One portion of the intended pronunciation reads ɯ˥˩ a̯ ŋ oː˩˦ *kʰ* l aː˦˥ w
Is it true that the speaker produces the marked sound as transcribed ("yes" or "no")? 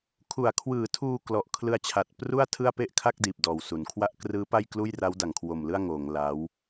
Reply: no